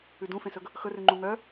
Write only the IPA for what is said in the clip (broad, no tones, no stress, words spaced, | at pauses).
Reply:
ʉdũfẽsɵɡ | xɵrʉ ŋ͡ǃũŋœ